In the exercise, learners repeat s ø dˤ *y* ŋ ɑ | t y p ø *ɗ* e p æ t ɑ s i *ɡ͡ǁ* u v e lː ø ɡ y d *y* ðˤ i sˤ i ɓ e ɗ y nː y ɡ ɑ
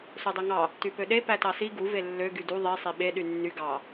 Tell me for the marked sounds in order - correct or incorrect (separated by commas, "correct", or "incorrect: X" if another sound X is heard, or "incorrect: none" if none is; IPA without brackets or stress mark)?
incorrect: ø, correct, incorrect: ɡ, incorrect: u